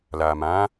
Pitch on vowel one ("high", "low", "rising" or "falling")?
low